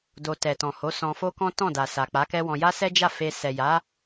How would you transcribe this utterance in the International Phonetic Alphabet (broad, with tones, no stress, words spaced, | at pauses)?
do˧ tɛ˨tɔ̃˨ ho˨˦sɔ̃˧fo˦kɔ̃˦ tɔ̃˦˨da˨ sa˨k͡pa˨˦kɛ˦wɔ̃˧ ja˦ sɛ˦d͡ʒa˦˨fe˧ sɛ˨ja˨˦